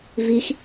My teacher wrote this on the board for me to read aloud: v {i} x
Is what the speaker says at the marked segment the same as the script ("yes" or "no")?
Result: yes